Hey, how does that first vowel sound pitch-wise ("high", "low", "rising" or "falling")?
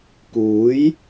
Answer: rising